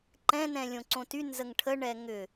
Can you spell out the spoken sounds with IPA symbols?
ǃ ɛ̃ n ɛ̃ lʲ õ ǀ õ t y n z ə ŋ ʈʰ ə ɳ ɛ ŋ ʏ

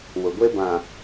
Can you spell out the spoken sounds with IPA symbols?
w ʊ˨ ɡʷ e˦ b ã˨

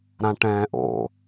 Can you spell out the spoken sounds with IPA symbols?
ɾ ã ʈ ɛ̃ː ʔ o̰

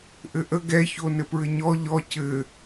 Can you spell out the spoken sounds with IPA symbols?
ʔ ɘ ʔ ə ɡ ɛ ç o n ɘ p ɹ ɘ ɲ ɔ ʎ ɔ cʰ ɘ

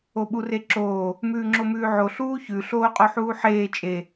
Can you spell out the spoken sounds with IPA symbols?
o ɓ u r e ǁ oː | m ʉː ŋ͡ǁ o m ʉː ʕ o ɬ uː ç ʉ ɬ oː qʼ o ħ uː ħ eː t͡ʃʼ e

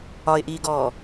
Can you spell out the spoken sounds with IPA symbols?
ɒ ɪ̯ ʔ iː ɡ ɔː

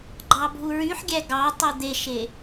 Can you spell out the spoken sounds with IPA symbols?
ɡ͡ǃ ɑ bʱ u ɹ y ħ ɡʲ æ ɡ ɑ tˤ u d̪ e ʃ e

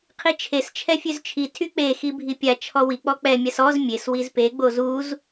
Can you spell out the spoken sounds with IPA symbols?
qʰ i t͡ʃʰ e s t͡ʃʰ ɛ fʲ ø z t͡ʃʰ i tʰ y k͡p e x i bʱ i pʲ a t͡ʃʰ ɔ w i k͡p ɔ k͡p ɛ mʲ a s ɔ z mʲ e s w i z p e ɡ͡b o z u z

